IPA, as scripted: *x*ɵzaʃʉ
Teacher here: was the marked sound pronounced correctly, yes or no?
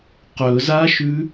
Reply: no